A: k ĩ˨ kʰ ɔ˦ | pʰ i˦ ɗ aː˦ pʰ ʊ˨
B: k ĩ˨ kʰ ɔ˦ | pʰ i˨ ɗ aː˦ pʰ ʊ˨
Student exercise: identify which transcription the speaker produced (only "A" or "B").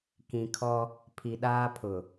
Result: B